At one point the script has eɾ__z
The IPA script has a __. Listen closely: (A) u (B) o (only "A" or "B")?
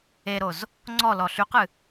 B